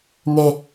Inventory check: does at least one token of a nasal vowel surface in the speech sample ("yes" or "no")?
no